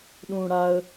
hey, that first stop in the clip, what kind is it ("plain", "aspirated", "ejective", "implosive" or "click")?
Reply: implosive